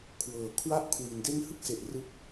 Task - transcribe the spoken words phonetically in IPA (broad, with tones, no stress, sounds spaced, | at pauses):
kʰ w ɤː˩˦ kʰ w a˦˥ ʔ kʰ w i˩˦ n d e˧ n h ɯ˥˩ k̚ s e˨˩ ʔ r ɯ˦˥ k̚